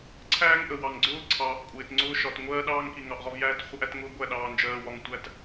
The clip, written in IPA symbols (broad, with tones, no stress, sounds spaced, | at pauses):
ǀʰ æː˦ ŋ ʔ ə˨ w ɑ˨ ŋ ɡ͡ǀ ʊː˦ ǀʰ ɑː˨ ʔ kʷʼ ɪː˨ t ŋ͡ǀ ʊː˦ ʃ ɒ˨ t ŋʷ ɜː˦ ɗ ɑː˦ ŋ k i˨ ŋ ɑ˨ ʔ ʁ ɒ˦ v j æː˦ t χʷ ɪ˦ ʔ æ˦ t ŋ ʊː˦ ɡʷ æ˦˨ ɗ ɑː˨ n d͡ʒ ɜː˨ w ɒ˨ ŋ tʷ æ˦ t